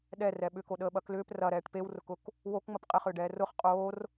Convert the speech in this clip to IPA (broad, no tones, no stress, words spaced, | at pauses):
ɗɛrɛ ɓʏkoɗəːɓɐ klʏːp rɐɾɛːʈ pewrʊkʊk | wokŋ͡məp qʼɪχʏːɖɛː rʊχ qʼoːr